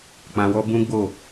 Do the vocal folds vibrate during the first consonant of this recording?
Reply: no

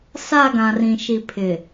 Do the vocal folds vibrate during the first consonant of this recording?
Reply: no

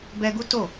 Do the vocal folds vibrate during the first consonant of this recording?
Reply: yes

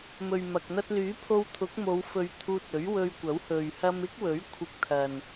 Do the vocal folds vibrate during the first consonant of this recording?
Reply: yes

